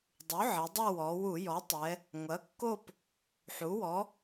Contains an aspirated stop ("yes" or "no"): no